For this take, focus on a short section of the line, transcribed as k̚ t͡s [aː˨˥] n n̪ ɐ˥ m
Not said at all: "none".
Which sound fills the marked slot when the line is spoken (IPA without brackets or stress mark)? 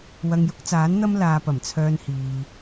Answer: aː˨˥